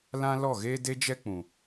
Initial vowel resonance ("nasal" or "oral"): nasal